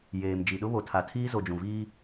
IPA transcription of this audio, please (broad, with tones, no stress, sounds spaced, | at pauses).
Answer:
j eː˨ m d͡ʒ i˨ ɗ ʊ˦ β o˨ tʰ a˨ tʰ iː˦ z o˨ d͡ʒ ũ˨ v iː˦